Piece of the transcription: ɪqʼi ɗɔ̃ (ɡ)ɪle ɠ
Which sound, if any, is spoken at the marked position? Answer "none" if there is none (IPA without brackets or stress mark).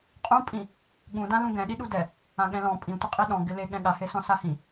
ɡ